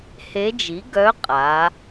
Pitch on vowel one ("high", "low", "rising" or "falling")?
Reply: rising